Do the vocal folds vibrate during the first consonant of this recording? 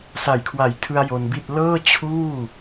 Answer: no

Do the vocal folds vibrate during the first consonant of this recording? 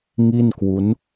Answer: yes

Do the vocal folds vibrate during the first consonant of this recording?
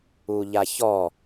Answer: yes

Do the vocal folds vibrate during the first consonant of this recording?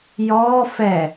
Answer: yes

